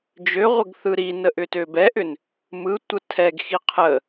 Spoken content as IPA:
d͡ʒ ø ʁʷ ə ɡ θ ɯ ɾ i n ə ʔ ʏ t ø b ɛ ʔ ʏ n | m ɯ tʷ ə tʰ ɛ ɡ x i qʰ ə

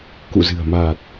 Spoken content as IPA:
k ṵ˧˨ z ɨ̤˨˩ ə̯ m aː˨˩ t̚

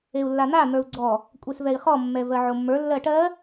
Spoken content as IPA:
e u̯ lː a n̪ a n̪ ə˞ u̯ ɡ͡ǀ ɔ | kʷʼ e s v ɛ i̯ χ ɔ mː ɛ v ɜ ʕ o mː ə˞ lː ɜ ʈ ɜ

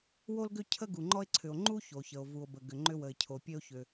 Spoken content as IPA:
w o˥ l ɡ ʏ˥ cʰ ə˥ ɡ u˩ ŋ͡ǃ ɔ˥ e̯ ǀʰ ʏ˩ o̯ ŋ͡ǃ u˥ ç o˩ ç ə˩ o̯ v u˩ o̯ b ə˩ ɡ ʏ˩ ŋ͡ǃ ʏ˥ w ə˩ e̯ cʰ o˩ pʲ e˥ o̯ ç ʏ˩

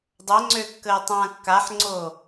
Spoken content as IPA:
dˤ œ ŋ͡ǀ ø kː əː tˤ ãː kː a ħ ŋ͡ǀ o

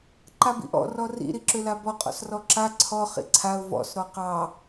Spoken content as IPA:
ǃ a b ḭ ʔ ɔ̰ r ɔ r ḭ ɾ i ǁ ʏ l a b ɔ qʼ ɔ̰ s r ɔ ǁ a ǀʰ ɔ χ ḭ ǀʰ a ʊ̯ v ɔ̰ s ɾ ɔ q ɑ

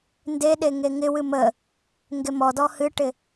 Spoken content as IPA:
n d e ɗ e ŋ e ŋ ɪ w ɨ m ə | ŋ ɡ e m ɔ d ɔ h ɨ ʈ ɪ

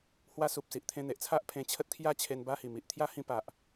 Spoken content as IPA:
h w a˦ s u˨ p̚ s i˨ ʔ t̪ʰ ẽ˧ n̪ e˨ ʔ t͡sʰ a˦ ʔ pʰ ẽ˧ t͡ɕʰ ə˦ t̚ kʰ j a˥˧ t͡ɕʰ e˧ n b a˦ h i˨˩ m i˨ ʔ t̪ʰ j a˦ h ĩ˧ p a˨ ʔ

